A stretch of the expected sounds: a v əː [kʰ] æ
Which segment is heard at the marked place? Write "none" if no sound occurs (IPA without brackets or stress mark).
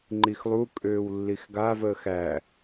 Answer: x